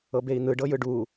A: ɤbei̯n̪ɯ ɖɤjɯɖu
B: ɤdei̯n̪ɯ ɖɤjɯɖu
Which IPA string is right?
A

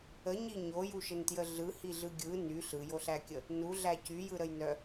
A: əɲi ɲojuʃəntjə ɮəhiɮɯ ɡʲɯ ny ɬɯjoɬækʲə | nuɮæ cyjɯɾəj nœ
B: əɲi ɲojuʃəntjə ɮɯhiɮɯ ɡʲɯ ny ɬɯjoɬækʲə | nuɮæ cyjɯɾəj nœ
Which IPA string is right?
B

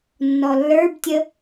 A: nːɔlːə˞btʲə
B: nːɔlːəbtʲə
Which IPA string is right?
A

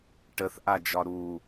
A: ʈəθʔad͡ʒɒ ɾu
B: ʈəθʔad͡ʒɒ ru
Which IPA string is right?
A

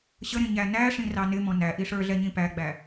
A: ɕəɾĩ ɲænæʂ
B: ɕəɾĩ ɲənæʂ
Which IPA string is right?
A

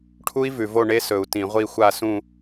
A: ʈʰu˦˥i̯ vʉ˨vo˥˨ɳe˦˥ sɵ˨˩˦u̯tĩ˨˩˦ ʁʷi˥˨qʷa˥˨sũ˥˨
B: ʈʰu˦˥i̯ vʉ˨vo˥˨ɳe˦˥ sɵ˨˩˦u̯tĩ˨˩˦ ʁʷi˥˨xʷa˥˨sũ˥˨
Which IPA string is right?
B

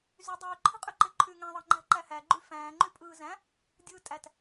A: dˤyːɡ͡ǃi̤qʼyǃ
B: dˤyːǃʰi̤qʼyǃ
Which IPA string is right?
B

